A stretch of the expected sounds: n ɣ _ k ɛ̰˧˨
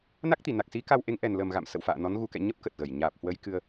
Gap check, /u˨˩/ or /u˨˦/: u˨˦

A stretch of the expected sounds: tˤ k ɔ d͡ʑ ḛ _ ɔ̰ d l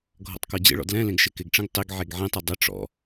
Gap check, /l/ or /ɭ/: ɭ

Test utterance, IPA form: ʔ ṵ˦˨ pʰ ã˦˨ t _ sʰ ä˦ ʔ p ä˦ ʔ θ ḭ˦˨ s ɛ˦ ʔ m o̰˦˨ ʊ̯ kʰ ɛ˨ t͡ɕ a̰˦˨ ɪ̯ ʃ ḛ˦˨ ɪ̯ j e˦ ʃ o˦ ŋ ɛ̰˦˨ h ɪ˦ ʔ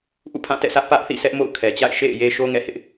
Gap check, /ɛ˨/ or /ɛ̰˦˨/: ɛ̰˦˨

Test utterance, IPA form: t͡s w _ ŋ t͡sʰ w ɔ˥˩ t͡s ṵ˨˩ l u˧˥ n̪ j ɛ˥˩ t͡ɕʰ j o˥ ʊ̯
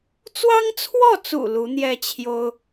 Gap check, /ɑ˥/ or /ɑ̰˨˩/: ɑ˥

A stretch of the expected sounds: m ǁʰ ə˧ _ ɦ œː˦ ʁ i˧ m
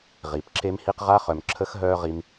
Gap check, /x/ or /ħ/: x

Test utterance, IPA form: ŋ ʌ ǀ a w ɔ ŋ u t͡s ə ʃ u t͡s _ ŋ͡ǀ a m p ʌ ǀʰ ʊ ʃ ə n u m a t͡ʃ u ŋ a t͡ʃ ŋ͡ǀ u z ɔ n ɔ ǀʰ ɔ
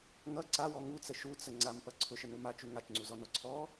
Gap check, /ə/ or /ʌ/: ə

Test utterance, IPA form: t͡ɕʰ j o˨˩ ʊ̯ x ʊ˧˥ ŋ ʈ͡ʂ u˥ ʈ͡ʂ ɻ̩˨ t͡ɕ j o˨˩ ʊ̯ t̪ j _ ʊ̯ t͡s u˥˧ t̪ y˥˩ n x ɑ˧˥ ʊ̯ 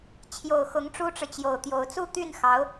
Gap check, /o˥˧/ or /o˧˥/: o˧˥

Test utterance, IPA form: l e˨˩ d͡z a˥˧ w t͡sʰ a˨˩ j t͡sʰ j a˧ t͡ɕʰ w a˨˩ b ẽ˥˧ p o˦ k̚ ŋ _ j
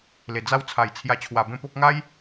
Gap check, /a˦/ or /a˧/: a˦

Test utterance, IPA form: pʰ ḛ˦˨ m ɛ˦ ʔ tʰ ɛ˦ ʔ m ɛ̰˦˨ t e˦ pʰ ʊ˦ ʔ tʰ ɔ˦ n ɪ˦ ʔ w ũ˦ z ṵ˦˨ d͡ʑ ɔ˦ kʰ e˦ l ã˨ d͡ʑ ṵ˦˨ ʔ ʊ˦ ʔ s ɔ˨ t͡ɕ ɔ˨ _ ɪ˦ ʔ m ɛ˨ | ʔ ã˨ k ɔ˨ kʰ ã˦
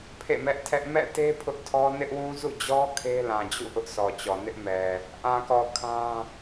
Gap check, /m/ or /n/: n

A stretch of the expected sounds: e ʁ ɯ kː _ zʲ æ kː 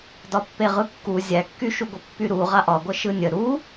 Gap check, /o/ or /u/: u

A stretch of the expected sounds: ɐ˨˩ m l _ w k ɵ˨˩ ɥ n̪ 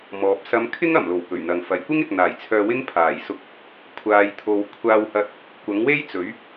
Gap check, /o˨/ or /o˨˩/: o˨˩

